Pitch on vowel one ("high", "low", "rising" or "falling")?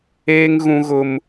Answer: high